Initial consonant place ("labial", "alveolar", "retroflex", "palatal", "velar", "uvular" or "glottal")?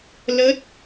alveolar